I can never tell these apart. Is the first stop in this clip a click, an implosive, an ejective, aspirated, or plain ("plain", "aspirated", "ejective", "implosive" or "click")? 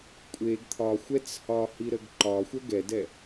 ejective